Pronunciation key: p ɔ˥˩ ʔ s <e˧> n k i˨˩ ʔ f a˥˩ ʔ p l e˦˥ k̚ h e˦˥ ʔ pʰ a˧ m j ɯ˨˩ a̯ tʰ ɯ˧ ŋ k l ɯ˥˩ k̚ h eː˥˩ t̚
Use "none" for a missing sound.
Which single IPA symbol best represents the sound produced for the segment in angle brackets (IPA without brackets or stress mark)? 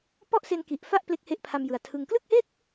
e˧